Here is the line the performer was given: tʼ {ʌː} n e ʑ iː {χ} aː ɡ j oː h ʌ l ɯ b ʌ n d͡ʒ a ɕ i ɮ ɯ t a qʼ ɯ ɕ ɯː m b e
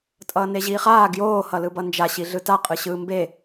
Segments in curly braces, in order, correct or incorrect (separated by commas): correct, correct